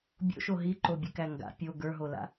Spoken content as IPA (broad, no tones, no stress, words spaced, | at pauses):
bʲo̰ʃo ɦiǃobʲɨkæ ŋɡa̰ pʲo ɡə˞ɦola̰